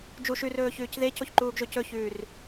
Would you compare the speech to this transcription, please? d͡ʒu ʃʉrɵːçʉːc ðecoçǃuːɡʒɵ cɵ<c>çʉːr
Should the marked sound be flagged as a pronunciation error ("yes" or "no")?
yes